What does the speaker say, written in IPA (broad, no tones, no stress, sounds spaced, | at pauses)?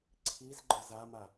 ǀʰ i z ɡ͡ǃ ə z a m a